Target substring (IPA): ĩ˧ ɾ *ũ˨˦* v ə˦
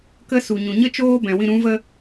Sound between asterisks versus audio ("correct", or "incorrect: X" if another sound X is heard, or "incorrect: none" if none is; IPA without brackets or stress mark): correct